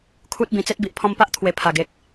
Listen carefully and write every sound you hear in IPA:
kʰ u˦ t̚ b ĩ˨˩ t͡s e˦ t̚ b i˨ ʔ pʰ ɔ̃˧ m p a˦ ʔ t̪ʰ w e˨˩ pʰ a˨˩ ɡ e˨ k̚

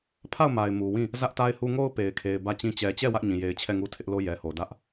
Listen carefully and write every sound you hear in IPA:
pʰ a˦˨ ʊ̯ m a˨ ɪ̯ m u˨ w ĩ˦˨ | z ä˦ ʔ t a˦ ɪ̯ h u˦ ŋ o˦ ʊ̯ p e˨ ɪ̯ kʰ e˨ ɪ̯ b ä˦˨ t͡ɕ ĩ˦ t͡ɕ ɛ˨ t͡ɕ ɛ˦˨ w ä˦ ʔ ɲ ĩ˨ j e˨ ɪ̯ t͡ɕʰ ɛ˦˨ ŋ u˦ tʰ ɪ˦ ʔ l o˦ j ɛ˨ h o˨ d ä˦ ʔ

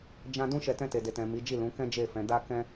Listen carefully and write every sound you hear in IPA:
d͡ʒ ã˦ d ũ˦ ʃ ɛ˧ t ɛ̃˧ t e˨ d e˨ t ɛ̃˨ m i˨˦ d͡ʒ i˦˨ l ũ˨˦ k ɛ̃˦ d͡ʒ e˦˨ f ɛ̃˨˦ d a˦ k ɛ̃˦

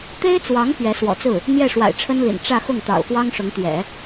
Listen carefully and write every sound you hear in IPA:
t̪ e˥ ɪ̯ t͡s w ɑ˧˥ ŋ p ɥ ɛ˧˥ s w ɔ̰˨˩ t͡s ɹ̩˥˩ | n̪ j ɛ˥˩ ʂ w a̰˨˩ ɪ̯ ʈ͡ʂʰ ə˥ n l ḭ˨˩ n ʈ͡ʂ ä˥˧ x ʊ˥˩ ŋ t̪ ɑ̰˨˩ ʊ̯ f w ɑ˥ ŋ ʂ ʊ˧˥ ŋ t̪ ɥ ɛ̰˨˩˦

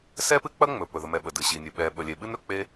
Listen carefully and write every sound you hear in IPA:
s ɛ˥ p ɨ˥ k͡p ɐ˥ ŋ͡m ɵ˩ p ɵ˩ ð ə˩ m ɛ˩ ɓ ə˩ d ɨ˩ ɕ i˩ nʲ ɨ˩ ɓ ɛ˩ ɓ ə˩ lʲ e˩ ɓ ɨ˥ n ɾ ɵ˩ k͡p e˥

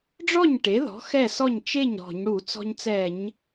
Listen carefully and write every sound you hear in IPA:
ɖ͡ʐ ɔ˥˩ ɲ ʈ e˩˥ ð ɔ̤˩˥ x ɛ˥˩ s ɔ˥˩ ɲ t͡ʃ e˥˩ ɲ ɾ ɔ̤˧˩˧ ɲ ɽ u˧˩˧ t͡s ɔ̤˧ ɲ t͡s ɛ˧˩˧ ɲ

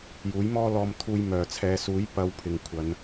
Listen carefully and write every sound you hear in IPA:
j uː˨˥ j m ɔː˥ l ɔː˧ m t̪ʰ uː˧ j m œː˨ t͡sʰ ɛː˨˧ s uː˨˥ j p ɐ˨˧ w pʰ ɪ˨ ŋ kʷʰ ɐ˨˧ n

